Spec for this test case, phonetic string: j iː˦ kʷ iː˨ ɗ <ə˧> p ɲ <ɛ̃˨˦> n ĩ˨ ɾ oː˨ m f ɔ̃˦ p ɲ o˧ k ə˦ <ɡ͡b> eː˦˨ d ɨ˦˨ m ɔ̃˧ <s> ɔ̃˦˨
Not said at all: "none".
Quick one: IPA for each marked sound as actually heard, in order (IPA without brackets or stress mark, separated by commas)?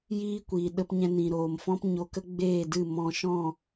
ə˧, ɛ̃˧, ɡ͡b, ʃ